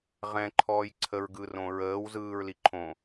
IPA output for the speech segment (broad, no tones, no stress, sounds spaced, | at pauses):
ʁ ɛ̃ ǃʰ ɔː j ǀʰ ə ɹ ɡ ɯ r õ ɹ əː w z ɯː ɹ l i ǃʰ õ